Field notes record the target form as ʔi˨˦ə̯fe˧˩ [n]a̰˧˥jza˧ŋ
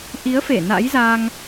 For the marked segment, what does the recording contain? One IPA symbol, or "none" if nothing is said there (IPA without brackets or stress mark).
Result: n